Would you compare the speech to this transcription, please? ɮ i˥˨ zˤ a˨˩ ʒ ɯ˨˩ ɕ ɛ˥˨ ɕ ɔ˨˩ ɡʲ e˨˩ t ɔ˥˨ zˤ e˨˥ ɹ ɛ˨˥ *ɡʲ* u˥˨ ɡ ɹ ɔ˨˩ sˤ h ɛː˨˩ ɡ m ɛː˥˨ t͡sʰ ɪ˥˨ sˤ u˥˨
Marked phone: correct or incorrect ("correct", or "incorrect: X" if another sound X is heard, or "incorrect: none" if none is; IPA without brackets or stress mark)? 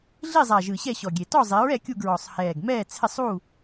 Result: incorrect: kʲ